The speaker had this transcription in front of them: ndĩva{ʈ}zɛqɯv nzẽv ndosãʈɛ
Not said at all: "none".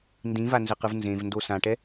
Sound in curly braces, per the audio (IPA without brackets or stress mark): n